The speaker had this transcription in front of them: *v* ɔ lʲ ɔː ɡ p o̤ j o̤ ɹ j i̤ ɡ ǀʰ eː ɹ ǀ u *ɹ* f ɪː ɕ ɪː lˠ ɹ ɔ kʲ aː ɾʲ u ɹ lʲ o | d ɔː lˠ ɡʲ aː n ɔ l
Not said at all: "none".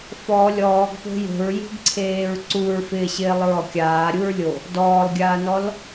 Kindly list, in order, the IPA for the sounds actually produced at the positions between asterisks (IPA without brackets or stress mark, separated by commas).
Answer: f, ɹ